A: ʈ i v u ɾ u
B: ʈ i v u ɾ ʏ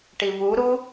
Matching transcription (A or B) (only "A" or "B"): A